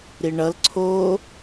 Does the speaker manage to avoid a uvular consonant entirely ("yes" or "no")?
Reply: yes